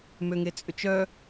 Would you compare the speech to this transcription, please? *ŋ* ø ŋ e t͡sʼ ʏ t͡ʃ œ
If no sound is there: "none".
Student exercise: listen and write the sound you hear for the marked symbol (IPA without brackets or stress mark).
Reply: m